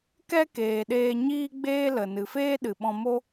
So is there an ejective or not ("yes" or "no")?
no